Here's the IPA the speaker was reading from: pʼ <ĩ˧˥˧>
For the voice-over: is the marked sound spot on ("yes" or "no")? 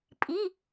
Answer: no